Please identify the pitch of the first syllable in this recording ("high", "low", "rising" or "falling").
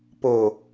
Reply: low